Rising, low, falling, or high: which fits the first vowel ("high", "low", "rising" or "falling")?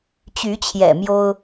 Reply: rising